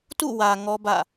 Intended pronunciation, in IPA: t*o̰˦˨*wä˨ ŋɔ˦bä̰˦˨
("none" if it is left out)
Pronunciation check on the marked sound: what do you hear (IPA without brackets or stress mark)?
ṵ˦˨